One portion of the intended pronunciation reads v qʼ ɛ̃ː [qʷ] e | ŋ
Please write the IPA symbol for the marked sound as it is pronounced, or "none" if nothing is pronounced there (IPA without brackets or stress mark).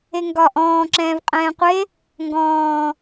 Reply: qʷ